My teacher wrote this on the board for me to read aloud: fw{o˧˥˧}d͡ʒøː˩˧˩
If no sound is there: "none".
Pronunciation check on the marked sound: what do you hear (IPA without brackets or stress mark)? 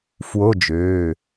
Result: o˧˥˧